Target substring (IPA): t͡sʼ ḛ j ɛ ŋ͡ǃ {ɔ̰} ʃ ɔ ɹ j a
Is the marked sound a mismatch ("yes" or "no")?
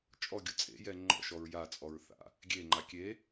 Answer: no